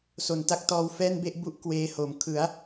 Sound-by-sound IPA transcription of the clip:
s o˨˩ n t a˦˥ k̚ t ɔː˧ w f ɛː˥˩ n b e˥˩ ʔ b u˥˩ ʔ k w eː˦˥ h o˨˩ m kʰ ɯ˩˦ a̯

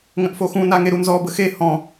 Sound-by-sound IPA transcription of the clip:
ŋ ə̃ ʔ f o x ũ n a ŋ e ɾ u n z ɔ b ə x e h ɔ̃

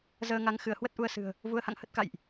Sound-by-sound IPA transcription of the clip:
z əː˧ ŋ a˨˦ ŋ x ɨ˧˩ ə̯ h w ə˦˥ t̚ ʔ u˧ ə̯ s ɨ̤˨˩ ə̯ | v u˨˦ ə̯ h a̰˧˨ ŋ h ə˦˥ t̚ k a̰˧˨ j ʔ

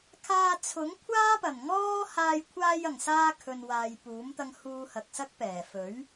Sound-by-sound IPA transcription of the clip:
kʰ aː˧ t͡sʰ ʊ˨˥ ŋ kʷʰ aː˥ p ɐ˨˩ n ŋ ɔː˥ h aː˧ j kʷʰ aː˧ j ɐ˨˩ ŋ s aː˧ kʰ ɵ˨ n w aː˨ j p uː˨˥ m t̪ ɐ˧ ŋ h uː˧ h ɐ˨ k̚ s ɐ˥ k̚ p ɛː˨˩ f ɵ˨˥ ɥ

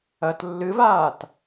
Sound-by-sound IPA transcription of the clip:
ɐ t lː ɨ v aː t

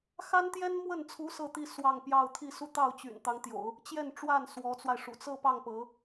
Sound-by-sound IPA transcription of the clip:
x a˥ n t̪ j ɛ˥ n m w ə˥˩ n t͡sʰ u˧˥ s ɤ˥˧ t̪ i˥˧ s w ɑ˥˧ ŋ p j ɑ˥˧ ʊ̯ t̪ʰ i˥˧ s u˥˧ t̪ ɑ˥˩ ʊ̯ t͡ɕ y̰˨˩ n t̪ ɑ˧˥ ŋ t̪ j o̰˨˩˦ ʊ̯ | t͡ɕ j ɛ˥˧ n ʈ͡ʂ w a˥˩ n s w ɔ˧˥ t͡s w a˧ ɪ̯ ʂ ṵ˨˩ t͡s ɤ˥˧ p ɑ˥˩ ŋ p ɤ˧˥

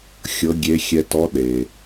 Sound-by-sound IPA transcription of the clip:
xʲ ɤ˧˥ ɡʲ e˧˥ xʲ ɛ˧ t ɔ˧˥ ɗ e˩

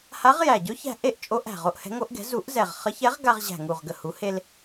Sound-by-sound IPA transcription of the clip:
h a˧˥ ʁ j æ˨˩ ɟ ɵ˧˥ ç æ̤˧ ʔ e˥˨ ʔ t͡ʃʼ o˧˥ ʔ æ̤˨˩ ʁ o˧ ʔ h ɛ̤˧˥ ŋ o˧˥ ʔ ɡ ɛ̤˩˥ z u˨˩˦ ʔ z ɛ˨˩ ʁ χ ə˧˥ ç ɛ˧˥ ʁ ɡ a˧ ʁ ʑ æ̤˨˩ ŋ u˨˩ ʁ ɡ ə˨˩ h u˩˥ h e˧ l

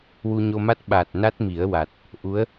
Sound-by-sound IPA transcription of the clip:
w u˧ ɲ o˧ m a˦˥ t̚ ɓ a˨˩ t̚ n a˦˥ t̚ m i˨˩˦ ə̯ w a˨˩ t̚ | ʔ u˧˥ ə̯

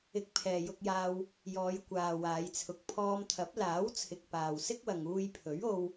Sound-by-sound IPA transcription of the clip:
ɪ˧ k̚ pʰ ɛː˨ j ʊ˧ k̚ j aː˧ w | j ɔː˨˧ j kʷ aː˨ w aː˨˧ j t͡sʰ ʊ˨ k̚ pʰ ɔː˧ m t̪ʰ ɐ˨˥ p̚ l aː˨˥ w t͡sʰ ɪ˨ k̚ p aː˨ w s ɪ˥ k̚ w ɐ˨ ŋ uː˧ j pʰ ɵ˨˥ ɥ o˧ w

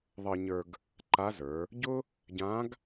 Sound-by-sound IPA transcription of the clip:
ðˤ ɤ˧ ɲ ə˞˧ ɡ | ǃ a˧˥ z ə˞˩˧ | ɟ ʊ˥ | ɟ ã˧˥ ɡ

